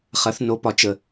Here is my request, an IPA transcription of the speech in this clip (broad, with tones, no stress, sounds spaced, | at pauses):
χ ɐ˨˦ θ n o˨˦ p ɒ˨ t͡ʃ ə˨